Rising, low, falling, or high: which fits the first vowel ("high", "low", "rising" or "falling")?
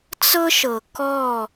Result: high